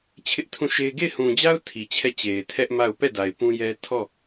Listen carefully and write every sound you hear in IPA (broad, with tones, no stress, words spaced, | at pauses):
t͡ɕʰɪ˦ʔtʰũ˦˨ʃe˦ɪ̯ ɡe˦˨ɪ̯hũ˨d͡ʑa˦ʊ̯ tʰi˨t͡ɕʰɛ˦˨t͡ɕe˨ɪ̯ tʰɛ˦ʔma˦˨ʊ̯ pɛ˦˨ da˨ɪ̯pũ˦jɛ˦ tʰɔ˦˨